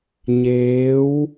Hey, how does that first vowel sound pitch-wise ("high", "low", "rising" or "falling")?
rising